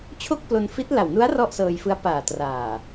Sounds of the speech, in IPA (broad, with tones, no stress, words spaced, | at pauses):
t͡ɕʰo˥˩k̚plo˧nfi˦˥t̚ la˨˩wnu˦˥a̯ rɔ˥˩ʔsɤː˧jfɯ˦˥a̯ paː˨˩traː˨˩